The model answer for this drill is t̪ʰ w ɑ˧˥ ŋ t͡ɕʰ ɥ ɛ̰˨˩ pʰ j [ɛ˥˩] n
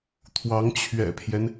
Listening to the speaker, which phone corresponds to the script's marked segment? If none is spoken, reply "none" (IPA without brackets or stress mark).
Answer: ɛ˦